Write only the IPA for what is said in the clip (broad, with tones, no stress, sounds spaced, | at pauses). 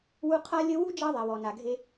w u˦ qʰ a˦ lʲ ə˦ w u˥ d͡ʒ ɑ˦ ðˤ ɛ˩ w ɔ˩ n a˩ ɡʱ e˨